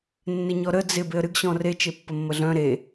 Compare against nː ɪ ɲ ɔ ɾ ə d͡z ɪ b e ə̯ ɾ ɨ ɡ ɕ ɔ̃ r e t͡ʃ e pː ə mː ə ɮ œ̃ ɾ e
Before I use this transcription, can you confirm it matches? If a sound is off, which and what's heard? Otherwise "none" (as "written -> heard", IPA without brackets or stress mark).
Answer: none